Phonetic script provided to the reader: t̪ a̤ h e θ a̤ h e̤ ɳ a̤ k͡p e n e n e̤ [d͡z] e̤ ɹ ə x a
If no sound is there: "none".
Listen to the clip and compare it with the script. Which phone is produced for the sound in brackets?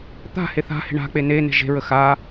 ʒ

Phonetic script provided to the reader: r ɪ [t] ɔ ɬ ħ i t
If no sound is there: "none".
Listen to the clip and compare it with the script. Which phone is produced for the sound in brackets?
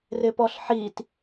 p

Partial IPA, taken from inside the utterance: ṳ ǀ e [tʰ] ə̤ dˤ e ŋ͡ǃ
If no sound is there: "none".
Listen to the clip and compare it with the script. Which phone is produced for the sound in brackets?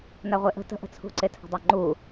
tʰ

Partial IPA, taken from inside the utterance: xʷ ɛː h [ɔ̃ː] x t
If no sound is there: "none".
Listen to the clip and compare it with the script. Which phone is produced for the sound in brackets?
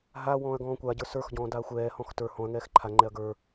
ɔ̃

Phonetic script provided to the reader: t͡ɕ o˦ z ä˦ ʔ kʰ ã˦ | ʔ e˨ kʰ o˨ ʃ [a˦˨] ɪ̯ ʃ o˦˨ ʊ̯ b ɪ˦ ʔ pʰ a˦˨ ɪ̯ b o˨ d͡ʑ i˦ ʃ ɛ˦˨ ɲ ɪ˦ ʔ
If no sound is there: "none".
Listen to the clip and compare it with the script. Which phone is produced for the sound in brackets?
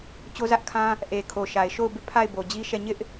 a˨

